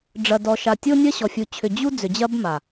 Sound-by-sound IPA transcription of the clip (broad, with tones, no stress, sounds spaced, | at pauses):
ɖ͡ʐ ɐ˨ d ɔ˨ ʃ a˨ tʲ o˦ nʲ ɐ˦ ɕ ɔ˨ fʲ u˨ t͡ɕʰ ʏ˨ d͡ʑ u˦ d͡z ʏ˨ d͡ʑ ɐ˦ b m a˨